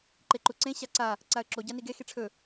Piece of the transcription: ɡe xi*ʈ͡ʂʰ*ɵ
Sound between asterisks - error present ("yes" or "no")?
no